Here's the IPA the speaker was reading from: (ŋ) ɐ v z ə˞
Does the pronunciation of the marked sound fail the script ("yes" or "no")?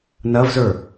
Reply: yes